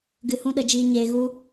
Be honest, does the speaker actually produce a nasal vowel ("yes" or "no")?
yes